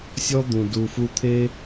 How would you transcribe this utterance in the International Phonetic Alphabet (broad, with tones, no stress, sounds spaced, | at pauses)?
sʲ ɔ˦ d̪ ũ˨ d u˨ f u˧ t̪ʰ e˦